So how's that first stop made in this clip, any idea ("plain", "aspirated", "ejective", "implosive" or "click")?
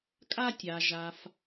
ejective